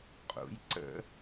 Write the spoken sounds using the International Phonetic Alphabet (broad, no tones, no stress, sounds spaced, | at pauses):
qʼ ṵ j ǀ ə̰